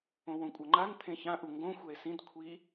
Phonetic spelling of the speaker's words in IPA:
õ w õ kʷʼ ʌ ŋ͡ǃ a n t̪ʰ ẽ ç ã ʔ u ŋ ɡ õ xʷ ɛ e̯ s ĩ d kʷʰ i

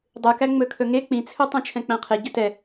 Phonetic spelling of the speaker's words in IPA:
dˤ ɯ k æ ŋ͡m ɵ kʰ ɵ ŋ e k͡p ĩ t͡sʰ ɵ tˤ ɛ̃ t͡ʃʰ ɛ̃ k͡p æ̃ qʰ e ɟ ɵ t ɛ

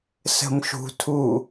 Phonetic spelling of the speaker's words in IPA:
s ə̤ m ʃ ṳ tʰ u

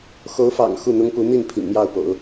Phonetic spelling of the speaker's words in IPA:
x o˧˥ ʊ̯ f ɑ̰˨˩ ŋ x u˥˩ n̪ ʊ˥ ŋ p u˧˥ n̪ i˥˩ n pʰ ḭ˨˩ ŋ m j ɑ˥˩ ʊ̯ p o̰˨˩˦ ʊ̯

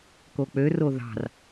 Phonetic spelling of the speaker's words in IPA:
k o k͡p ø r o ð ɑ̤ r

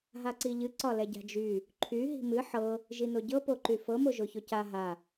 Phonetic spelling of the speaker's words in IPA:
ɦ a ǀ i ʎ ɨ ǀ ɒ l ɛ ɟ a̤ d͡ʒ y | ǃʰ y ɦ i̤ m ɨ ħ ɤ | ʒ i n o ɟ ɤ p o ǃ y f ɤ m o ʒ o ç o c a ɦ a

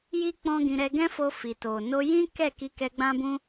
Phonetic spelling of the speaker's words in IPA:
j i˦ k͡p ɔ̃˦ ɡ ĩ˧ ɾ ɛ˧ ɡ ɛ̃˦ f o˧ f i˨ t o˨ n o˧ j ĩ˦ k ɛ˦˨ k i˧ k ɛ˧ ɡ͡b ã˦ b ũ˦

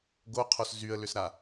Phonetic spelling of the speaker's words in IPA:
ɡ o qʰ o s z y ə̯ l ʏ s ɾ a

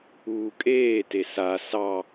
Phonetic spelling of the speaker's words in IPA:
uː kʼ eː t e s a s ɑ

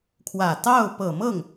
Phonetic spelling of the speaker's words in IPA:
kʰ w ä˨˩ t̪ ɑ˥˩ ʊ̯ p ɤ˨˩ m ɤ˥˩ ŋ

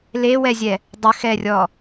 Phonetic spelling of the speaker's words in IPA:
l e w ɛ zʲ ɛ | dˤ ə x ɛ rʲ ɔ

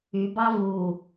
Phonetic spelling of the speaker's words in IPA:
y b ɑ v u

